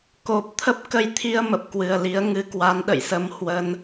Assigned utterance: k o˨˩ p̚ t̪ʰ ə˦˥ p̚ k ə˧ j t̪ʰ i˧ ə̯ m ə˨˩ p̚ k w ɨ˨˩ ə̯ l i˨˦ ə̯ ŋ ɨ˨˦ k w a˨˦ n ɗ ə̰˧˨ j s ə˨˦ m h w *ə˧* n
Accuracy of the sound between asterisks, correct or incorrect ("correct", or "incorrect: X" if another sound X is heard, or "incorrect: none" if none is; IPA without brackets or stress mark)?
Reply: correct